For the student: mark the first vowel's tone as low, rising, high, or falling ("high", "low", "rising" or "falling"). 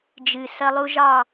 low